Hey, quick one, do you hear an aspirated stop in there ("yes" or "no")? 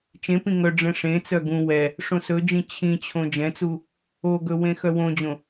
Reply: yes